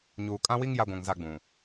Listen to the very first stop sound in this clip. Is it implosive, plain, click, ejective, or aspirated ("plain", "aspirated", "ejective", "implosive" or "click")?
ejective